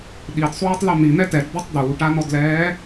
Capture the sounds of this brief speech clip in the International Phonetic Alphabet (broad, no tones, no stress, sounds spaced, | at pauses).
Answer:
ɗ i d sˤ uː tˤ l ɔ n̪ i n̪ ɛ t ɛ d d̪ ɔ tˤ d̪ uː ʈ a n ɔ d l ɛː